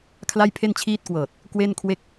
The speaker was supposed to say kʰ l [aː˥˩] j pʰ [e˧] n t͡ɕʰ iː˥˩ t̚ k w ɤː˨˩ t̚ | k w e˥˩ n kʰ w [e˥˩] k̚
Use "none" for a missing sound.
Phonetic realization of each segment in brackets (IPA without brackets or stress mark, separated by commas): a˥˩, e˥˩, e˥˩